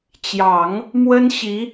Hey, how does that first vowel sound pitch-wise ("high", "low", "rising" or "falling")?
low